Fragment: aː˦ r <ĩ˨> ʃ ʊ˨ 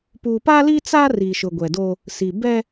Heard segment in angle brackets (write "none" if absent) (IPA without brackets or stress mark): i˨